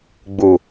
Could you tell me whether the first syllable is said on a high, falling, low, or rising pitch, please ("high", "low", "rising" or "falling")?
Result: low